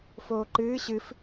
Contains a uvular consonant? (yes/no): no